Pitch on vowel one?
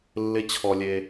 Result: high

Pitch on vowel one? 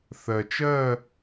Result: low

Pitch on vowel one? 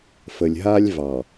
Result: low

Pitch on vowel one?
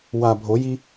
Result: low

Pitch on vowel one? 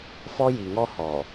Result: high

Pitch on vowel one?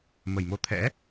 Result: low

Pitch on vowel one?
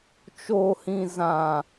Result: low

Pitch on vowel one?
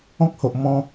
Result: high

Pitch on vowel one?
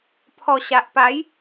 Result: low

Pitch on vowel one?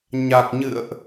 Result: low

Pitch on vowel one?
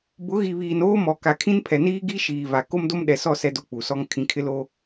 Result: rising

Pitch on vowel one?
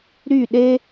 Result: falling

